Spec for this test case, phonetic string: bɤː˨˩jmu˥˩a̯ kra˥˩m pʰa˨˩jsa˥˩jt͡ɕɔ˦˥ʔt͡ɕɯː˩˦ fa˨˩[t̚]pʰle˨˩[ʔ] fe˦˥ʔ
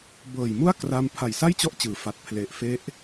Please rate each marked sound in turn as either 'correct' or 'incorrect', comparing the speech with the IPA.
correct, correct

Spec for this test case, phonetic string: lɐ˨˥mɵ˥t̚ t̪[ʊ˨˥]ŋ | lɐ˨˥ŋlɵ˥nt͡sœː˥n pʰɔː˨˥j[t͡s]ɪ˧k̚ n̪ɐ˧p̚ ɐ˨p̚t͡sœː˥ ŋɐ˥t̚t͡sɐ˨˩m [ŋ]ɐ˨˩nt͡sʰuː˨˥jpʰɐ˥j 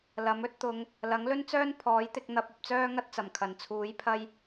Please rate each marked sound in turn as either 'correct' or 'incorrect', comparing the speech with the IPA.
incorrect: ʊ˨˧, incorrect: t̪, incorrect: kʰ

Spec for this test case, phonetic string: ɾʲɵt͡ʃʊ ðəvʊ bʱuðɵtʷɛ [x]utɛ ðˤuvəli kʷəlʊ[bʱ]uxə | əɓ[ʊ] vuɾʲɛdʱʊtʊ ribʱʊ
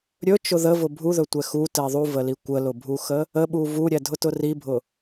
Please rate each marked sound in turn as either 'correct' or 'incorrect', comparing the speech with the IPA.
correct, correct, incorrect: u

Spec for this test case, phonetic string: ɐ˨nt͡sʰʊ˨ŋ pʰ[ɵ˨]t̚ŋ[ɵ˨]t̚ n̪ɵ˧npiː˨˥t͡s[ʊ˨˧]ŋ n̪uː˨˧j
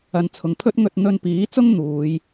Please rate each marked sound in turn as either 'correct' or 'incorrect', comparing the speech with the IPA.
incorrect: ɵ˥, incorrect: ɵ˧, incorrect: ʊ˥

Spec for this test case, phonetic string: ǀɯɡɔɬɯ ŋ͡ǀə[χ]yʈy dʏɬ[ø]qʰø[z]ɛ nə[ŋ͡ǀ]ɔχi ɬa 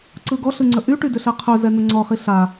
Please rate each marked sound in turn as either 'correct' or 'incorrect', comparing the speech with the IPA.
incorrect: ʔ, incorrect: ɛ, correct, correct

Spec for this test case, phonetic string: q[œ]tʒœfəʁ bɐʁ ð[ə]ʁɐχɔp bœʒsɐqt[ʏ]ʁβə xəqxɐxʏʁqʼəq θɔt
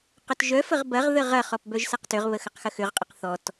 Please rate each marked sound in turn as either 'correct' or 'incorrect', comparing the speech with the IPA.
correct, correct, correct

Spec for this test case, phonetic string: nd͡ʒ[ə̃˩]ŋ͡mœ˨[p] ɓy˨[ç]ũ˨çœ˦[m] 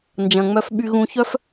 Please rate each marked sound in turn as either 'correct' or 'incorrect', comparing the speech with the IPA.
incorrect: ɐ̃˩, incorrect: f, incorrect: ɣ, incorrect: f

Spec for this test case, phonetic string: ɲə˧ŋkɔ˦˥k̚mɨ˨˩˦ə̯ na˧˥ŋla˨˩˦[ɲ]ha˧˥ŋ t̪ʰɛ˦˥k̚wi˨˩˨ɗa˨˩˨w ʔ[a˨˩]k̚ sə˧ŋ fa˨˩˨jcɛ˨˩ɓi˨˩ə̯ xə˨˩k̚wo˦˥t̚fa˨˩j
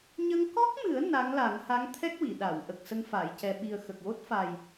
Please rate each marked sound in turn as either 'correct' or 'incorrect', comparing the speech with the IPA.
incorrect: ŋ, incorrect: ə˨˩

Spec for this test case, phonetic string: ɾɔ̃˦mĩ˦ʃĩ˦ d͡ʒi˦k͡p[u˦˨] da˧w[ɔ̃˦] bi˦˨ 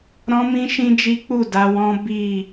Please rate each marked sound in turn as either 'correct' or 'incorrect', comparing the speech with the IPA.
correct, correct

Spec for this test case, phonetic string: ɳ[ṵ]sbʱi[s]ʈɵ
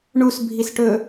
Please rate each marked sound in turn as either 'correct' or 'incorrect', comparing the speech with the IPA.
incorrect: u, correct

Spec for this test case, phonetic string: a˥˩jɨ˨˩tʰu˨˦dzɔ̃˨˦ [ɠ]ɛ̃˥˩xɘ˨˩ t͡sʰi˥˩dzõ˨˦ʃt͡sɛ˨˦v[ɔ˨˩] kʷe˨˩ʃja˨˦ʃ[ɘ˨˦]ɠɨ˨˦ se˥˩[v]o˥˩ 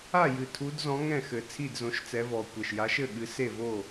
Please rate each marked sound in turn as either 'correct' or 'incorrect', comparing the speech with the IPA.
incorrect: ŋ, correct, incorrect: ɘ˥˩, correct

